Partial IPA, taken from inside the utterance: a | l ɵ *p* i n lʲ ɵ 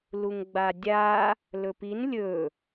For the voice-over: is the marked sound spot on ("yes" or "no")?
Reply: yes